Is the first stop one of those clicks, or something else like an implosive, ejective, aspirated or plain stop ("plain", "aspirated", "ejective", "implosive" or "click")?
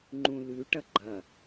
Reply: click